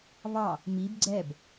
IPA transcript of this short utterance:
β ɑ | m i b ɡ͡ǀ ɛ b

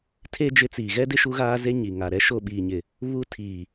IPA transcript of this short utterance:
tʰ e˦ d͡ʒ ɪ˦ t͡s iː˨ ɣ ɛ˦ d ɪ˦ ʃ u˦ ɣ aː˦ z e˦ ɲ i˨ ŋ a˨ ɾ ɛ˦ ʃ o˦˨ ɓ iː˨ ɲ ɪ˨ | β u˦ tʰ iː˨

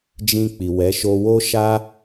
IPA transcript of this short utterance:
d͡ʒ ĩ˧ k͡p i˨ w ɛ˨˦ ʃ o˧ w o˦ ʃ a˦

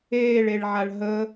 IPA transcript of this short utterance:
eː ɭ e ɭ ʕ a ɭ ɦ ə

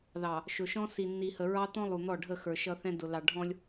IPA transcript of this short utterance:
ð ɑ˨ | ʃ ʊ˨ ʃ ɔ̃˦ s i˨ nː i˨ h ə˨ ɹ ɑ˦ t̪ ɔ̃˦ lˠ u˨ n̪ ɔ˦˨ ɖʱ ə˦˨ x ə˞˨ ʃ ʌ˦ θ ɛ̃˦ d ʊ˨ l ɑ˨ ɖʱ ɔ̃˦ lʲ

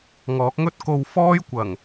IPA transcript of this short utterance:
ŋ ɔː˨˥ k̚ ŋ ɵ˥ t̚ k o˧ w f ɔː˥ j kʷ ɐ˨˩ ŋ

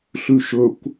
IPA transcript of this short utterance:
ɬ ʉ ʃ ɵ kʷ

